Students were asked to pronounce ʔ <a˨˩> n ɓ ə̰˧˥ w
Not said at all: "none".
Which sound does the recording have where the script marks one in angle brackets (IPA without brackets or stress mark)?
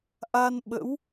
a˧